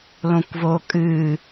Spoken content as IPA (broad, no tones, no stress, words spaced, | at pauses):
lõkʷvoːkʼɨː